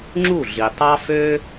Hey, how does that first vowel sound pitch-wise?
falling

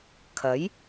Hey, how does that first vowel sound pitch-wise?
rising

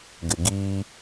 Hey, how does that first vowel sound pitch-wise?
low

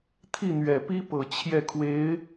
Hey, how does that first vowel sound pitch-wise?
falling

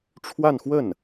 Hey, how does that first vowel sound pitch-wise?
falling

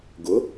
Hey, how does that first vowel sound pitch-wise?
rising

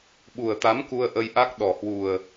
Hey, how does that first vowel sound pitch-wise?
low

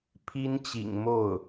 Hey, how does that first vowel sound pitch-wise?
high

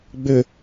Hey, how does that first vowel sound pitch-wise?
low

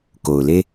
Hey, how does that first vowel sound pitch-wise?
low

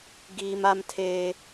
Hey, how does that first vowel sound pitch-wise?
high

